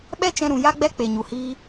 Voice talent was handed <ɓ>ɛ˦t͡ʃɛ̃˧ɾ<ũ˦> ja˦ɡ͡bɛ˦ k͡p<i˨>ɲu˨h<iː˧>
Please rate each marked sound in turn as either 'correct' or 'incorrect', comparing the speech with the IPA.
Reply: correct, incorrect: ũ˨, incorrect: e˨, incorrect: iː˦

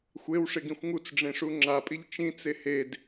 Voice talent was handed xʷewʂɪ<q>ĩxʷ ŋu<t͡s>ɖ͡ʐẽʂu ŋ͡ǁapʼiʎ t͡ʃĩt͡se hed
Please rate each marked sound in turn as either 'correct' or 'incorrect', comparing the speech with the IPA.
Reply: incorrect: ɡ, correct

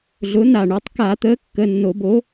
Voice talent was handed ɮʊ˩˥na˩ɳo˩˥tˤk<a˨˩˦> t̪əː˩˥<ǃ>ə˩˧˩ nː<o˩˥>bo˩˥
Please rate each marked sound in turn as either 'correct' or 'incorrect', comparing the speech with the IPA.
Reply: correct, incorrect: kː, incorrect: o˨˩˦

